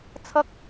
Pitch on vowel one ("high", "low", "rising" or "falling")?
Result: high